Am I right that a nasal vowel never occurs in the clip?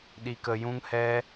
no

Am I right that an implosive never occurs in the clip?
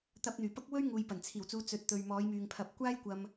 yes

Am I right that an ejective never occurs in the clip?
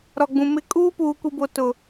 no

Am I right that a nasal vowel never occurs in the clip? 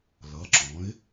no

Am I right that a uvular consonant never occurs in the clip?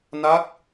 yes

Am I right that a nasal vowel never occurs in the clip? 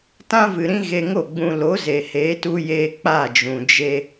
no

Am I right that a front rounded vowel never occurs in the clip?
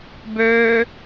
no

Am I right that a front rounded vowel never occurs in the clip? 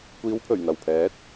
yes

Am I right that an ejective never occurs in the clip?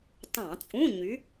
no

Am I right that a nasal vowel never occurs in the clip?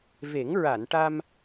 yes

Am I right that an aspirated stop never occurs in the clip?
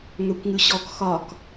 yes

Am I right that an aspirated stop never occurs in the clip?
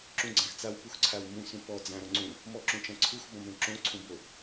no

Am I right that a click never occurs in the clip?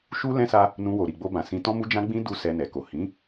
yes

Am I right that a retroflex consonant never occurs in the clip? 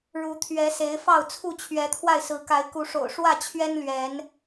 no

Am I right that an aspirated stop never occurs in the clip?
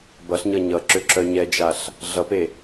yes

